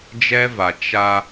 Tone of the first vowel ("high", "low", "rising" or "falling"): high